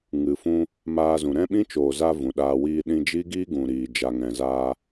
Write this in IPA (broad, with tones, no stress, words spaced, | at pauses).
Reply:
ŋɨ˨fũ˧ | maː˧zũ˨ ɾɛ̃˦ɓĩ˦t͡ʃoː˨za˧ vũ˨ɗaː˧wiː˧ ɗĩ˧ d͡ʒi˦ɡiː˦ ɡũ˨ɾiː˨d͡ʒa˨ŋɛ̃˨ zaː˧